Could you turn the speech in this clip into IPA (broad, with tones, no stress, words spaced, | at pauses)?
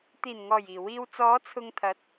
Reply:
t̪iː˨˩nŋɔː˨˩j iː˨˩wiː˧w t͡sɔː˨˧ t͡sʰʊ˧ŋt̪ʰɐ˨˥t̚